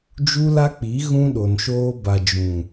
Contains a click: no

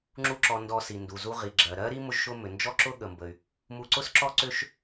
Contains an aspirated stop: no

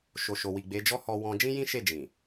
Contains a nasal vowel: yes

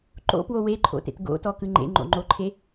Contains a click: yes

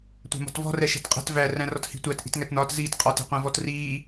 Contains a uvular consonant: yes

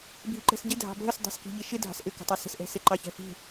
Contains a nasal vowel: no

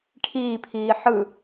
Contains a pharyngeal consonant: yes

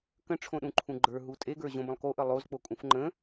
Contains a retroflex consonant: yes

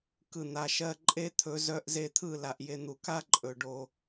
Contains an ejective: yes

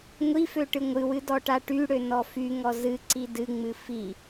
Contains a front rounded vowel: yes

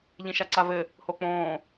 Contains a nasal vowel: yes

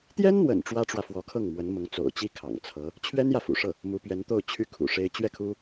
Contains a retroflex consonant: yes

